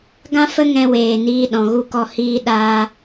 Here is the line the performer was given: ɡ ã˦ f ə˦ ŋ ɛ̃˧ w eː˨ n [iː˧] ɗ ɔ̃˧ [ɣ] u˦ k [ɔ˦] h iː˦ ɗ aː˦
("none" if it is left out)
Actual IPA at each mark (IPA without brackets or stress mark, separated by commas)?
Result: iː˦, ɣ, ɔ˦